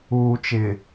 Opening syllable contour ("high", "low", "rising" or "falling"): low